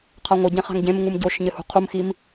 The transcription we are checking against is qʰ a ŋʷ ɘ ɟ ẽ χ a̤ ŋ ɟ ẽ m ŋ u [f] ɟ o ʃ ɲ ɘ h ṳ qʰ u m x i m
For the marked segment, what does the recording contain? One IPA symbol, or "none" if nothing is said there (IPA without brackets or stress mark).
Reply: m